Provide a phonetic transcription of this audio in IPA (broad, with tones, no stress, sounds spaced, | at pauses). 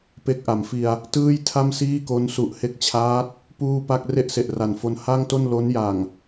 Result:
p e˦˥ k̚ ʔ a˩˦ m f i˧ a̯ | t ɯː˥˩ j tʰ a˥˩ m s iː˥˩ k o˦˥ n s u˨˩ ʔ h e˦˥ k̚ t͡ɕʰ aː˦˥ t̚ | p uː˥˩ p a˥˩ k̚ r e˥˩ ʔ s e˨˩ ʔ r a˨˩ n f o˧ n h a˥˩ ŋ t o˥˩ n l o˦˥ n j a˨˩ ŋ